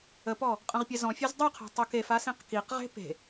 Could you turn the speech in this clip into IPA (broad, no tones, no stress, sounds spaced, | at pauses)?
ə p ɔ | qʼ ə̃ ʁ pʲ ɛ z ɔ̃ fʲ ø z dˤ u qʰ ɛ̤ tˤ o k e f a s ĩ q k i q ʁ e̤ p e̤